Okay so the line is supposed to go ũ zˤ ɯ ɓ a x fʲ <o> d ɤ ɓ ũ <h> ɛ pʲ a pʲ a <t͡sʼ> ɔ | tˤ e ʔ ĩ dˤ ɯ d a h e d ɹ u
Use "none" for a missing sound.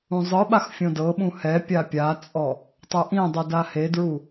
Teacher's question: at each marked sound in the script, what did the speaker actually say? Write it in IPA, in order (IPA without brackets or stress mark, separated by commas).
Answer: õ, h, t͡sʼ